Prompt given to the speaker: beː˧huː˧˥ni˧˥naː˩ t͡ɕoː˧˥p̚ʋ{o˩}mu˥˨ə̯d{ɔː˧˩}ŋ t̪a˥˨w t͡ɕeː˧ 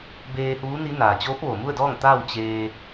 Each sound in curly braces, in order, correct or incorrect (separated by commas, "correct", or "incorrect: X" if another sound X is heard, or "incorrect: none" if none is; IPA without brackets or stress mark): correct, incorrect: ɔː˥˨